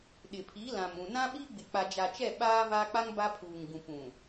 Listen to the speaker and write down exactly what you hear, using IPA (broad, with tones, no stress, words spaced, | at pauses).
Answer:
ɗɪ˨pʰi˨˦lã˨mũ˨ nã˦ɓi˦ɡ͡bɪ˨ k͡pa˨d͡ʒa˨t͡ʃɛ˦˨ ɓaː˦vaː˦k͡pa˦ŋ ba˦pʰuː˨ŋɡũ˨ pũ˨